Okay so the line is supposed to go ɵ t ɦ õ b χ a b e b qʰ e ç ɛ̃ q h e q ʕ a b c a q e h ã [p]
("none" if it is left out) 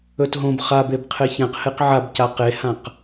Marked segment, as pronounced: q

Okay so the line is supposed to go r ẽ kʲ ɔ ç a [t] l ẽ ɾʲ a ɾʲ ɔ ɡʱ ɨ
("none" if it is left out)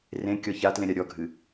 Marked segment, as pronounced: t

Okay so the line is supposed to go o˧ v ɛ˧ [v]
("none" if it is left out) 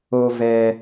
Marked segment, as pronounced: none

